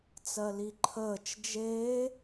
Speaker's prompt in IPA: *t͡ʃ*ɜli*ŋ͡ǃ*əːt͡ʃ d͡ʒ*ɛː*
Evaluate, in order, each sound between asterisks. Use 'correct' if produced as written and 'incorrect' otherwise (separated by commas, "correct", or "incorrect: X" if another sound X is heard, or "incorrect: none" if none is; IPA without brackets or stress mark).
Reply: incorrect: t͡s, incorrect: ǃʰ, incorrect: eː